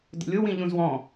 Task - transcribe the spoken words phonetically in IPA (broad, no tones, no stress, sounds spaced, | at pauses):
d ə̰ lʲ ʊ w ĩ ʎ ũ z w ɔ̃